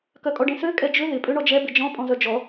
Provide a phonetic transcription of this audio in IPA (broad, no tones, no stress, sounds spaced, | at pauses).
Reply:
k œ kʼ ɔ ɖ ẽ s ø kʼ ɛ d͡ʒ ʏ ð ɪ pʼ ø ɳ ɔ d͡ʒ ɛ b ɪ d͡ʒ ɔ̃ pʼ ɔ̃ z œ d͡ʒ ɔ